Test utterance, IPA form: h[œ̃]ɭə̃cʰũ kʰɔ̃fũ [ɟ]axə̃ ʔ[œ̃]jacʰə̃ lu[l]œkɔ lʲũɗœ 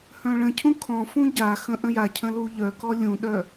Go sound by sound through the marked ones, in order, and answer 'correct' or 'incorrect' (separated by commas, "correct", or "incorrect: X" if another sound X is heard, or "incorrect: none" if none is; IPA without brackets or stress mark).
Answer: correct, correct, incorrect: ə̃, incorrect: ʎ